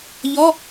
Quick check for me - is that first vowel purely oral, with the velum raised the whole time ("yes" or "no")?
yes